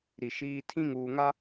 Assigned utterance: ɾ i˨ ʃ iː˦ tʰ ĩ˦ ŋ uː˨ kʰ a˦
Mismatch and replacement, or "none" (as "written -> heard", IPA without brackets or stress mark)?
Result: kʰ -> ŋ